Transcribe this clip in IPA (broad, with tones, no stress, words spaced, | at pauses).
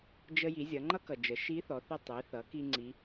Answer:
d͡ʒə˧ji˩˧ zʲʌ˩˧ŋ͡ǃʌ˥kʌ˩d͡ʒə˩˧ ʃi˧˥θɔ˩˧θi˧ tˤi˩˧θʌ˩˧ ki˥ŋ͡ǀi˧˥